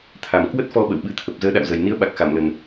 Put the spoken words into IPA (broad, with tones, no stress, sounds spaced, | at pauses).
t̪ʰ a˨˩ m k w ə˦˥ t̚ f ɔ˧ ɓ ə̰˧˨ w ɓ ɨ˨˦ t̪ʰ ə˨˩ p̚ z əː˨˦ ɗ a̰˧˨ w z ə˨˩ j n i˨˦ ə̯ ɓ a˨˩ k̚ x a˧˩ m l ə˨˩ n